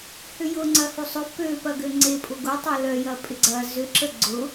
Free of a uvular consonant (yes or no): yes